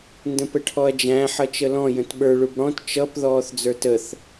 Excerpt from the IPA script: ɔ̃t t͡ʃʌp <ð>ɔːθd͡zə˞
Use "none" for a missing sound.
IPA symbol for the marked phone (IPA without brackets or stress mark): ð